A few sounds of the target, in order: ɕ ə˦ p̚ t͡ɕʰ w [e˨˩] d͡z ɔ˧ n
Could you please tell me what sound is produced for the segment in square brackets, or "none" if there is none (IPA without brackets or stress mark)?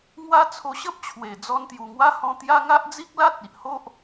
e˨˩